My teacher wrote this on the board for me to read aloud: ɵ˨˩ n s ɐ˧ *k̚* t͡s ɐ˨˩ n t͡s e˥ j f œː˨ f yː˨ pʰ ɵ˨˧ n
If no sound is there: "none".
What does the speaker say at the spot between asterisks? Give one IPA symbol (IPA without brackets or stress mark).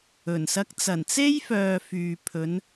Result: k̚